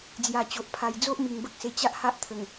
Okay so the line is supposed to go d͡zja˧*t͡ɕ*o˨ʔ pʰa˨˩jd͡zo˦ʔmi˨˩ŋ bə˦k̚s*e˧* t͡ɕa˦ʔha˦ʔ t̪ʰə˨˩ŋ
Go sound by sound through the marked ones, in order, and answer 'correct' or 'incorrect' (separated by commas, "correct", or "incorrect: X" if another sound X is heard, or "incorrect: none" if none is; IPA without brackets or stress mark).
correct, correct